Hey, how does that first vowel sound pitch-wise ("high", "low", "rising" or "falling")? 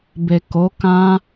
low